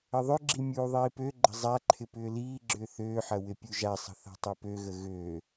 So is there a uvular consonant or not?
no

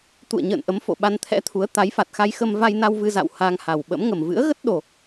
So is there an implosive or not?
yes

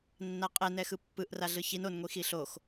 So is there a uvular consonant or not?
yes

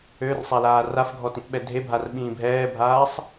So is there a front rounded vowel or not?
yes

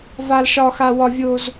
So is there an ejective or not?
no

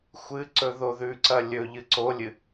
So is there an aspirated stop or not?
no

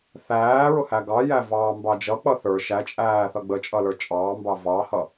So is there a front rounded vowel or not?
no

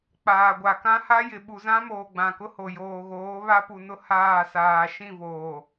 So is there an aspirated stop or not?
no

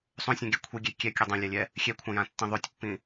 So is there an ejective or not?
no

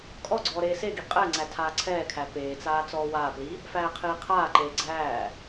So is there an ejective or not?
yes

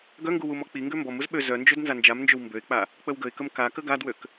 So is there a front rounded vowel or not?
yes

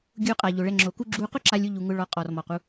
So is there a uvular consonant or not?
yes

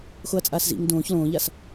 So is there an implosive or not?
no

